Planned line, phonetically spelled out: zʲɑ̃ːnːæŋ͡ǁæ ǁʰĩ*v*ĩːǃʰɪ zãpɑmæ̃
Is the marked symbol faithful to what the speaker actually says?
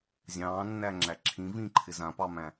yes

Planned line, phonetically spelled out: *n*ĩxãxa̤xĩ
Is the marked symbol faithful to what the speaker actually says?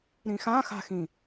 no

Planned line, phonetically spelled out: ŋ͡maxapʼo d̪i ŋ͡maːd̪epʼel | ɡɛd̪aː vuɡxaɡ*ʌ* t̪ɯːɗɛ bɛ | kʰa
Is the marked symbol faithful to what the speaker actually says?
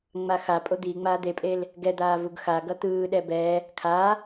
yes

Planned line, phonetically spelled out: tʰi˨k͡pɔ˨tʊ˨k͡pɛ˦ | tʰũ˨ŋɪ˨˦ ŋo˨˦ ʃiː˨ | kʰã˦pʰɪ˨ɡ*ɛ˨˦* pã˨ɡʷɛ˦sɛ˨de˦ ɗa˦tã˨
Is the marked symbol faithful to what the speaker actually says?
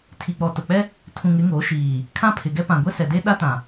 no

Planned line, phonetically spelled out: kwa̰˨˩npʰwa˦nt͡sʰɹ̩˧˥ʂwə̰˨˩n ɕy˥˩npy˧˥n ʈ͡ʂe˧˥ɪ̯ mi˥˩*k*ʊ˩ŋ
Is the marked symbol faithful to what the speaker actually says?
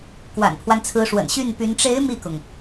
yes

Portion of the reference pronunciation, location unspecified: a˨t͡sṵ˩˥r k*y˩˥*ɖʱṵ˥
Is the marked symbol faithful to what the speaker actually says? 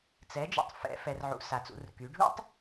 yes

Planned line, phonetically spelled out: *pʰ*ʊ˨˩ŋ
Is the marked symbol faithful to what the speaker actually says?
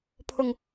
yes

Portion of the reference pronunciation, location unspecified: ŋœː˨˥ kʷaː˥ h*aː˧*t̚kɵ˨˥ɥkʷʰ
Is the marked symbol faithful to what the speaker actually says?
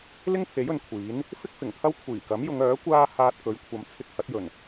yes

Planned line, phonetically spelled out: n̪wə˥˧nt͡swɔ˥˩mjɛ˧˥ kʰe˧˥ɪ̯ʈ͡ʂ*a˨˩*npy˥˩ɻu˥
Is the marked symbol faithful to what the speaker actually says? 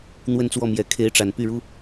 yes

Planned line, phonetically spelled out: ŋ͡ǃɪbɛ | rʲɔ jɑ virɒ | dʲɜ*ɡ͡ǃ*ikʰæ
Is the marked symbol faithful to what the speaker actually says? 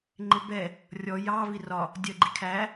yes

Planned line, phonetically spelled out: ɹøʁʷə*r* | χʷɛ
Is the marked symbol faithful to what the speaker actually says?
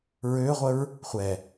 no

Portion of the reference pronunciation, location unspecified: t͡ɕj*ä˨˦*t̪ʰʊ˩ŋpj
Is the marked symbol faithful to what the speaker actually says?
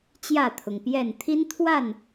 no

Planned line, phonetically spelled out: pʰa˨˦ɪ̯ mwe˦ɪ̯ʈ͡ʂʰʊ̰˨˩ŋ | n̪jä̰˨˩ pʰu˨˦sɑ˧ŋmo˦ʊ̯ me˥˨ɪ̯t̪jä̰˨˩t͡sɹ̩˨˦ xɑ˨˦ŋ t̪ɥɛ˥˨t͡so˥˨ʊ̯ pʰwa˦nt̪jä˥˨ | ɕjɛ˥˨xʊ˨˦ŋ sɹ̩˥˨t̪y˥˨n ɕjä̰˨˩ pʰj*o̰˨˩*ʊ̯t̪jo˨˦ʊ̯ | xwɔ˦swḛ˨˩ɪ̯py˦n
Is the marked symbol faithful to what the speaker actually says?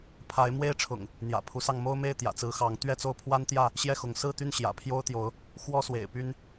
no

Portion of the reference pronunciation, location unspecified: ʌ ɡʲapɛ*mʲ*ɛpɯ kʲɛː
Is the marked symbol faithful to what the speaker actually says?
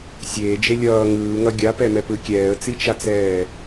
no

